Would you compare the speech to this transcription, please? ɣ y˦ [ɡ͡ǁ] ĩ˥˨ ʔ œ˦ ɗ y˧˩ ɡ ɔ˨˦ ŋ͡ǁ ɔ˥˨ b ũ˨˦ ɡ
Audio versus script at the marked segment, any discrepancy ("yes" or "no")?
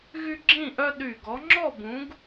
no